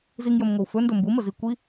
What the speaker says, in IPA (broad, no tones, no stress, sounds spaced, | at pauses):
z i ŋ j ɵ m ŋʷ ə w f ɵ n d ɵ m b u m ə z i kʷ i